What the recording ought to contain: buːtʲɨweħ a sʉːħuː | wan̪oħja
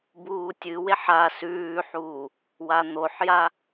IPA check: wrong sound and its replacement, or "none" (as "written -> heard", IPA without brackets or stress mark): none